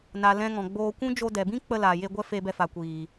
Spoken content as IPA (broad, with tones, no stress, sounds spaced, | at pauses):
n a˨ l ɛ̃˧ ŋ ɔ̃˨ ɡ͡b oː˧ kʷ ũ˦ d͡ʒ o˧ d ɛ˨ b ĩ˦ k͡p ə˧ l aː˨ j e˧ ɡʷ ɛ˦ f e˧ b ɛ˧ f a˨ kʷ iː˨